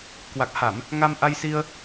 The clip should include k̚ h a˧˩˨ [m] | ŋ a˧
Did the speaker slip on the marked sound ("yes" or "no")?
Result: no